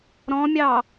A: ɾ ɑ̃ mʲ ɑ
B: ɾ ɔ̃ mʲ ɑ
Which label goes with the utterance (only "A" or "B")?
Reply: B